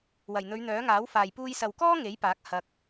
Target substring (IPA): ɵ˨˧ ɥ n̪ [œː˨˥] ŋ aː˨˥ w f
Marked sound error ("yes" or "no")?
no